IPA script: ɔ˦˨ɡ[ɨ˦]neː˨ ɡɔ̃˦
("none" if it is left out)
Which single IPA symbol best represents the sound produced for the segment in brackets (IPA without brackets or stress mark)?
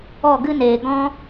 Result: ɨ˦